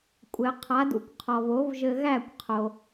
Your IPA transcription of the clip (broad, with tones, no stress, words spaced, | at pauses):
kʷʼɘ˩qʰa˩˥d ṵ˩kʷqʰɔ˩vo˩˥vʒɘ˧ ɣæ˥˩kʷqʰo˩